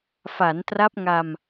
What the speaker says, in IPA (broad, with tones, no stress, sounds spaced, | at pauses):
f a˩˦ n t r a˦˥ p̚ ŋ a˧ m